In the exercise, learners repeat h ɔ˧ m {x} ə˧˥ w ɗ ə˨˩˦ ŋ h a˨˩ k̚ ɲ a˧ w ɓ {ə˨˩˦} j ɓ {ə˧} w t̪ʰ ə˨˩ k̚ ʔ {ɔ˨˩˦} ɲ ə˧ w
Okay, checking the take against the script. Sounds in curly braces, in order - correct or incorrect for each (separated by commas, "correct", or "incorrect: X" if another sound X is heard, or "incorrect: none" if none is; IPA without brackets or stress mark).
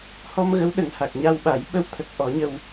incorrect: ɣ, incorrect: a˨˩˦, correct, correct